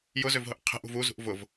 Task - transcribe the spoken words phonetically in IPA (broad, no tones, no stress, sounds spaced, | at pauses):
j ʊ z ø v ɦ ʊ ʔ qʰ ɛ̤ ʔ ṳ v u z ṳ ʔ v ʊ v